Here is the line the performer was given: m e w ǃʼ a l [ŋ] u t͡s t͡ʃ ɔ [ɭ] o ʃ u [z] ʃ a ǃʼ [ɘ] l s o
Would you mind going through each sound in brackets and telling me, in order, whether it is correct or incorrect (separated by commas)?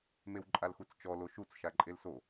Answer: incorrect, incorrect, incorrect, incorrect